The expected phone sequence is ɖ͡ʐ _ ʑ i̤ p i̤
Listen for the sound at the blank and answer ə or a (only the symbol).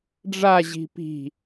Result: a